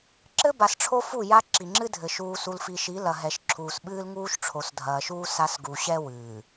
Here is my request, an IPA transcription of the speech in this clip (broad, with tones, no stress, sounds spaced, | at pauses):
ǁ ɘ˦ b a˨ s ʈ͡ʂʰ o˦ f u˦˨ j a˦ ǁ i˨ ŋ͡ǁ ɨ˦ dʱ ɘ˨ ʃ uː˨ s u˨ l f i˨ ʃ i˨˦ l ɐ˨ ɦ ɛ˨ ʃ ǁʰ uː˨ s ɓ ɨː˦ l ŋ uː˦ ʃ ʈ͡ʂʰ o˨ s dʱ ɐː˨ ʃ uː˦ s a˦ s ɡ u˨ ɕ ɛ˦ w ɨː˨